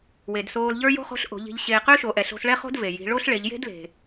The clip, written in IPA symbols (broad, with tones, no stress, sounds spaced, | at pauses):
w e˩ d s oː˧ l ʎ ə˞˥ j o̤˥ χ o̤˧˥ ɬ ʔ o̤˩˧ ʎ i̤˧ ʎ ɕ eː˧ q ʏː˥ ʃ o˩˧ ʔ ɛ˩ ɬ o̤˧ s ɭ ɛ˥ χ o̤˥ d v e˩ j i̤˩˧ ɭ o˥ ɬ ɭ e˩˧ ʎ j e̤˥ d l e̤˩